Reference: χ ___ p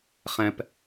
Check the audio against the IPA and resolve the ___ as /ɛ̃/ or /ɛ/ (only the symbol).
ɛ̃